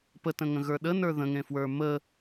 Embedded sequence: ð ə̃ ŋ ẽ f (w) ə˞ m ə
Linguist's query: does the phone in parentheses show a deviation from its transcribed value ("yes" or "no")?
no